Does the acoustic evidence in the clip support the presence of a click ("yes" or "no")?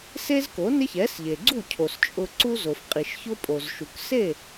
yes